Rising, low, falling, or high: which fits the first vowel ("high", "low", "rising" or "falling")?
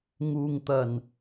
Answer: low